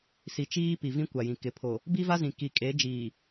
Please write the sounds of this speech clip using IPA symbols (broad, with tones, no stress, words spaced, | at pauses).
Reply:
si˨t͡ʃiː˦pi˨vĩ˦ kʷa˨jĩ˨ kɪ˨pʰo˨ | bi˦va˦zĩ˨ ki˨kʼe˨˦d͡ʒiː˨